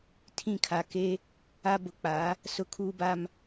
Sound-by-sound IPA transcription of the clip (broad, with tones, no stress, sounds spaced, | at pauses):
tʰ ĩ˦˨ kʰ a˨ k e˦ | a˦ b ʊ˨ k͡p a˨˦ | s ʊ˦ kʰ uː˦ b a˦ m